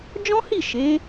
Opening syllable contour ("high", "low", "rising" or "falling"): high